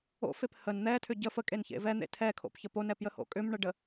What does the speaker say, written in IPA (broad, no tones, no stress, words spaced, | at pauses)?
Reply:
o̰fep hən n̪ɛtʰʏ ɟə fəkʼençḛ vɛn̪ḛ tʰɛkʰo̰pçə ponɛpjəho̰ kʼʏmɳəɖə